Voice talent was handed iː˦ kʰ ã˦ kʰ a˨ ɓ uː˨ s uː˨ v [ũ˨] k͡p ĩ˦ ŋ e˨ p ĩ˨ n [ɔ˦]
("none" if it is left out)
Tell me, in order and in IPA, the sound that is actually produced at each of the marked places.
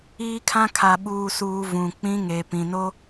ũ˨, o˦

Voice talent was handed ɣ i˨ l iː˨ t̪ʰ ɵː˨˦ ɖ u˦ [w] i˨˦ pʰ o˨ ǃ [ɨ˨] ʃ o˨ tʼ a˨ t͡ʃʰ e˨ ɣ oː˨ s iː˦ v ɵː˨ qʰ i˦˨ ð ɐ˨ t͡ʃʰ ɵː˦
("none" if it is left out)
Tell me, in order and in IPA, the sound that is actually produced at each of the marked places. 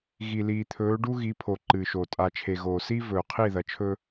ɣ, ɨ˨

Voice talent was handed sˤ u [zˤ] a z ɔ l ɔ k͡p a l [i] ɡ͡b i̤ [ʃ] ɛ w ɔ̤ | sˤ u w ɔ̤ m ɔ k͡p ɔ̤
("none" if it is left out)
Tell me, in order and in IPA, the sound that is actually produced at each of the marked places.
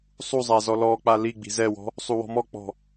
zˤ, i, z

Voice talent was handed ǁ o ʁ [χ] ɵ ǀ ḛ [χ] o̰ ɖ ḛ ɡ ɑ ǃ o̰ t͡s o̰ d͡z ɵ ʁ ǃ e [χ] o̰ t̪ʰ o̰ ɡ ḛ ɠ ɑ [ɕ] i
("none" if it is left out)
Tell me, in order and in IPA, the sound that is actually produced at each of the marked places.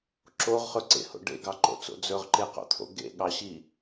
χ, h, q, ɕ

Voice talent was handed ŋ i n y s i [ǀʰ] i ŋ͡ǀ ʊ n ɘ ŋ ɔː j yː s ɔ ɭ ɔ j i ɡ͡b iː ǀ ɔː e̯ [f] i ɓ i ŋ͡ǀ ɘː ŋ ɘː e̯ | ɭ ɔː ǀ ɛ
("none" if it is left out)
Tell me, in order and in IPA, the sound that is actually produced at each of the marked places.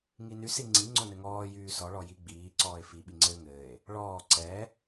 ŋ͡ǀ, f

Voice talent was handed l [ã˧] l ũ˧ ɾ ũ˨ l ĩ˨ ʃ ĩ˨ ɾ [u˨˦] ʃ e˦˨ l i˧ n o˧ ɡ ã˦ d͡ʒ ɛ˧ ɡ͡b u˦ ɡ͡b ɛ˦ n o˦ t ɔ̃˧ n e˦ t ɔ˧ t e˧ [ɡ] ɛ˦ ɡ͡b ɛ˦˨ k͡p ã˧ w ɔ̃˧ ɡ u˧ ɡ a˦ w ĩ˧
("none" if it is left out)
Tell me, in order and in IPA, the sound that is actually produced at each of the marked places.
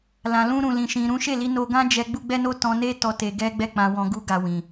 ã˨, ũ˨˦, ɡ

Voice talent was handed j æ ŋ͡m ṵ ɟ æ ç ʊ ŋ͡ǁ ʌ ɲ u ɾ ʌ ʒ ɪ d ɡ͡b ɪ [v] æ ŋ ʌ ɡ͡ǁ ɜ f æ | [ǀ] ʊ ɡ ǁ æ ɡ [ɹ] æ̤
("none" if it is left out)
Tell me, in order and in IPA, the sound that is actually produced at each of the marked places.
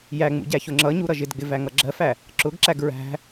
v, ǁ, ɹ

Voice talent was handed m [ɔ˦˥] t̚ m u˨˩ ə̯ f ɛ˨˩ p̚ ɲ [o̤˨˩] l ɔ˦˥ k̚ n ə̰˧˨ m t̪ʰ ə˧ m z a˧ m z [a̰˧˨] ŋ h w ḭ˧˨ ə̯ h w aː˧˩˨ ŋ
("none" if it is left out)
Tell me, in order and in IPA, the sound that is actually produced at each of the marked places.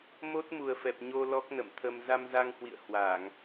o˦˥, o˧, a˧

